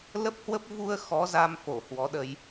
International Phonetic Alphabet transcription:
l ə˦˥ p̚ h w ə˦˥ p̚ v u˧ ə̯ x ɔ˨˦ z a˧ m f o˧˩ h w ɔ˨˦ ɗ ə˧ j

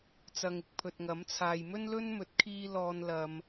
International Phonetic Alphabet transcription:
t͡s ɐ˧ ŋ ɪ˧ k̚ pʰ ɵ˨ t̚ ŋ ɐ˨˥ m t͡sʰ aː˨ j m ɵ˥ n l ɵ˥ n m ɵ˨˥ t̚ kʰ iː˥ l ɔː˧ n l ɐ˨ m

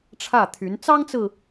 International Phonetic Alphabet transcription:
ʈ͡ʂʰ ä˥˩ t̪ʰ y˧˥ n t͡s ɑ˥ ŋ t͡s ɹ̩˨

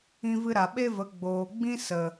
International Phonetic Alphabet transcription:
ĩ˧ v ɨ˧ ɾ a˨ ɓ e˦ v ə˨˦ ɡ͡b oː˨ ɡ͡b ĩ˦ s ə˨

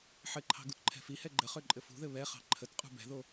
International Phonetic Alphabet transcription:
ħ ɘ ǃʰ ɑ̤ ɡ u t ǃʰ ɛ̤ f i h ɛ ɡ͡ǃ ə χ ø ǃʼ ɘ f ṳ ð ɘ β ɛ χ ɑ̤ ǃʰ ə t qʼ ṳ b ɛ̤ ð o

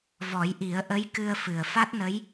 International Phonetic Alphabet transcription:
v ɔ˨˩˦ j ʔ i˨˩˦ ə̯ ʔ ə˧˥ j k ɨ˧ ə̯ f ɨ˨˩ ə̯ f a˦˥ t̚ n ə˧˥ j

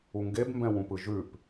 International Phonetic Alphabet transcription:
u ŋ ɡ e b m b ɛ̃ w ũ p ɯ ʒ ʉ p

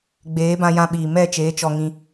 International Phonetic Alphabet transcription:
ɡ͡b eː˨˦ b ã˧ j ã˧ ɓ iː˨ m ɛ˦˨ t͡ʃ eː˨˦ t͡ʃ ɔ˧ ŋ ĩ˧

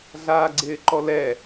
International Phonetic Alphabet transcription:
ɮ aː ɡ͡ǀ ɪː ǃ ɔ l ɛ

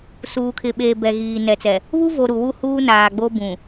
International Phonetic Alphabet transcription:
s uː˨ kʰ ɪ˨ ɓ eː˨ b ɛ˨ ɣ iː˨ n ɛ˨ t͡s ɛ˨ | β u˦ v o˨ ɾ u˨ w u˦ h uː˦ n aː˨ ɡ͡b o˦ b ũ˨

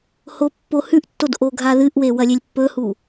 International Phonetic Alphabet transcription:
h o pː o h ʉ ʔ tː o d ʔ o ɡʱ a ð ɨ ʔ w e w ɐ lʲ e lʲ pː ɵ h u

